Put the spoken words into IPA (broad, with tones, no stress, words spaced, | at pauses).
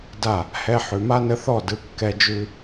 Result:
da˦˨ | hɛ˧ ħʉ˨ma˦nə˧ θɔ˦˨dɯ˨˦ kːɛ˧d͡ʒʉ˧